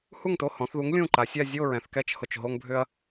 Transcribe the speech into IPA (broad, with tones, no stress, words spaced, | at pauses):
hu˥˩ŋto˥˩hɔ̃˩˧θðu˨˥ŋ lʲũ˥˩ǃa˩˧sʲa˥˧ zʲo˥˧ɹɛ̃˩˧θkɛ˥˩t͡ʃ hʊ˥˩t͡ʃɦo˥ŋbʱʏ˥ɐ̯